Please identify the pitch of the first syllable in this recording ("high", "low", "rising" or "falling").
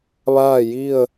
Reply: falling